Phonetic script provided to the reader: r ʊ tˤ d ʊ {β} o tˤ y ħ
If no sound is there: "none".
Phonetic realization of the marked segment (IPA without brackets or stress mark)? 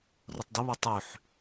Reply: β